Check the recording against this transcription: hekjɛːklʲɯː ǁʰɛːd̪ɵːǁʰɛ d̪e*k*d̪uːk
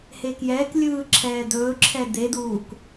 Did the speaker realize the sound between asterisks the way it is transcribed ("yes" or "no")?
no